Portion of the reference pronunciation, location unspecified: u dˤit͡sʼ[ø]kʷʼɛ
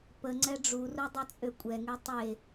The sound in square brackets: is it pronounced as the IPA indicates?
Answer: yes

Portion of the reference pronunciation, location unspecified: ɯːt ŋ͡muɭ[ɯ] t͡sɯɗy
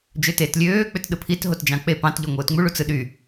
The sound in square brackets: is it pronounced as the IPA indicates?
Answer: no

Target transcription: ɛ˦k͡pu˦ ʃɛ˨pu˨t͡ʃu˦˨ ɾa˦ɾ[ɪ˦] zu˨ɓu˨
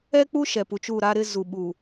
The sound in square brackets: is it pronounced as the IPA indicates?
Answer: yes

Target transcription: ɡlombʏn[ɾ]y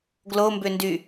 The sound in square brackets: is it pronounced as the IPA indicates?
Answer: no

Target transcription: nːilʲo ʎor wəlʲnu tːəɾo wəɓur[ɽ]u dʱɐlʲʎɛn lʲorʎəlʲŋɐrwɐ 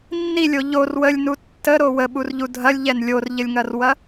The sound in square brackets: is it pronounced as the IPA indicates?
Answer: no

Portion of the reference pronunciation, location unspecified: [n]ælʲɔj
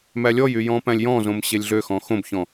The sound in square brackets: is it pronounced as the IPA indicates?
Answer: no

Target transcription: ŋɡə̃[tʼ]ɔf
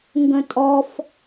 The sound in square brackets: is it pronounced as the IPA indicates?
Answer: yes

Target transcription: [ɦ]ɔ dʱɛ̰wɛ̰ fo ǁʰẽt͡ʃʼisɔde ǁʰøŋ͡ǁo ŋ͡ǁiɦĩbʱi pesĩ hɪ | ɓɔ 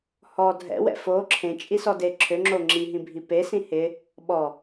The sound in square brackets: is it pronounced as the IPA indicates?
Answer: no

